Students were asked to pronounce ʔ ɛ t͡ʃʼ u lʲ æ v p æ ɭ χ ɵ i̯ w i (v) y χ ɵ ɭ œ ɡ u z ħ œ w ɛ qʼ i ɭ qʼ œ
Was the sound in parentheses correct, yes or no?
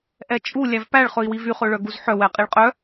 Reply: yes